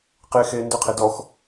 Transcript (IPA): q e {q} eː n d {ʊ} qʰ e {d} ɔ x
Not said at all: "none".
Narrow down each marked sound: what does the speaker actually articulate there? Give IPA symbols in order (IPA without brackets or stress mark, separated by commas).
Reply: x, ʊ, d